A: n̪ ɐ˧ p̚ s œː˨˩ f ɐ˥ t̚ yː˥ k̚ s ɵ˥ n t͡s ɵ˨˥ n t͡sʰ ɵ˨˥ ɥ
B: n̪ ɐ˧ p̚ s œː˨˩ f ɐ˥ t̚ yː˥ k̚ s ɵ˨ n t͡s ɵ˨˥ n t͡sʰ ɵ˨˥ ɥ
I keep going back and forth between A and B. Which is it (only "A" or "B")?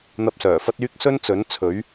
A